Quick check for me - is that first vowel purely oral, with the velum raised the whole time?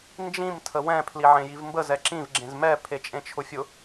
no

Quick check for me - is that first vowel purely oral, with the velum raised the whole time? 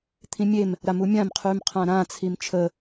no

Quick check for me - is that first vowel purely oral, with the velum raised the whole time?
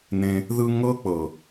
no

